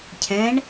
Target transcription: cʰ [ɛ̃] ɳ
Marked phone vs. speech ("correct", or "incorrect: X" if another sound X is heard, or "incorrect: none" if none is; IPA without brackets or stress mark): correct